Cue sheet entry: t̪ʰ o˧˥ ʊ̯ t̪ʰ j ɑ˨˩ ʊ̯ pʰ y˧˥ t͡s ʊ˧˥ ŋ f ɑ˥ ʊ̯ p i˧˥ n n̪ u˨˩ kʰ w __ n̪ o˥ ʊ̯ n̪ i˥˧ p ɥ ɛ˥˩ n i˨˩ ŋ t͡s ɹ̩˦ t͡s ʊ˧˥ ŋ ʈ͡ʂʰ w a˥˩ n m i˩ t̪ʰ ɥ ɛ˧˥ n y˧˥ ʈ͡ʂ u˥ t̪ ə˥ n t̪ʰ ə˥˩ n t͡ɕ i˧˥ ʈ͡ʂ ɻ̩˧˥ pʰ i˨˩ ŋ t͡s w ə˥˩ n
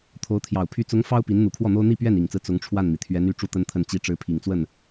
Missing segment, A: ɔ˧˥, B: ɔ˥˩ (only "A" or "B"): B